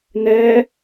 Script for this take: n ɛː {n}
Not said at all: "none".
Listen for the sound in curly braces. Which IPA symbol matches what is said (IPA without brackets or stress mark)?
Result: none